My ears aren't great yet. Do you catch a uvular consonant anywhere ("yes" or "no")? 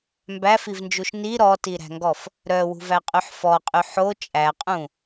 yes